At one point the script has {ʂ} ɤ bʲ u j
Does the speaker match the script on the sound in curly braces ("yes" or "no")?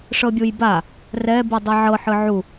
yes